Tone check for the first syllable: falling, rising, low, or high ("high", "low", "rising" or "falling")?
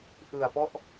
low